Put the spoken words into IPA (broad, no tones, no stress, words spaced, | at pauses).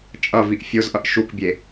t͡ʃʼʌviʔ fʲozʔʌʔ ʃukbʲe